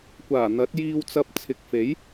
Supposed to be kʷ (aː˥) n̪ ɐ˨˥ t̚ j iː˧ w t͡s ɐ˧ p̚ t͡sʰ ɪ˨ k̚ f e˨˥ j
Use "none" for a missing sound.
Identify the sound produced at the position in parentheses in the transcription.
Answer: aː˨˩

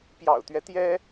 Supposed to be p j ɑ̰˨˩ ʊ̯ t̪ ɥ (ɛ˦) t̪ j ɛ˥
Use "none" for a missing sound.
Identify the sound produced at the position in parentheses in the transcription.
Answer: ɛ˦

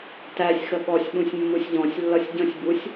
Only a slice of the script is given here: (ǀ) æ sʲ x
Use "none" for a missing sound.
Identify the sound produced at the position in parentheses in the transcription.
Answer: t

